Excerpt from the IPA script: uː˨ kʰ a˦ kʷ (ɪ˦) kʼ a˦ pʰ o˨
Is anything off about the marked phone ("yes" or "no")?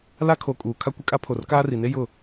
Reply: no